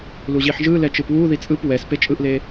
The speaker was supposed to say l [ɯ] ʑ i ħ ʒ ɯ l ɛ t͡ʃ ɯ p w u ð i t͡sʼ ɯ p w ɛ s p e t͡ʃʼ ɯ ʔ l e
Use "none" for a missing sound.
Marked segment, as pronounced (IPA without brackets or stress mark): u